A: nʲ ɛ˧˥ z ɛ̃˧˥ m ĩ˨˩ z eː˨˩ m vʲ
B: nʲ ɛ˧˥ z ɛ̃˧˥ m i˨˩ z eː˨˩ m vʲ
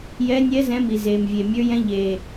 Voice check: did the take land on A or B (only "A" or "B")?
B